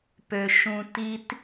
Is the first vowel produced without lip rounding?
no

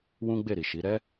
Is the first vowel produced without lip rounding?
no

